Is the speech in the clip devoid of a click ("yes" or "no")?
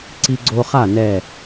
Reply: no